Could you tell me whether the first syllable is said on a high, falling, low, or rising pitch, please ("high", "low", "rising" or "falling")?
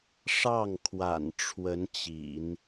falling